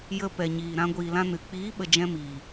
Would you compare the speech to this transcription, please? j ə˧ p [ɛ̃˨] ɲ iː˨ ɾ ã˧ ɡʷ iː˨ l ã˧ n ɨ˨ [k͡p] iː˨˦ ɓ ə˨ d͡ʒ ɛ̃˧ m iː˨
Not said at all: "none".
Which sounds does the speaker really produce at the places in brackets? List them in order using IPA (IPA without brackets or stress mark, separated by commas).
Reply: ɛ˨, k͡p